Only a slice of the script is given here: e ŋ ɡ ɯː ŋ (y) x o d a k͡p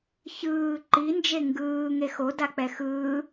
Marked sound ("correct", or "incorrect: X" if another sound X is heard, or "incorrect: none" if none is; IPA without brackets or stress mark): incorrect: e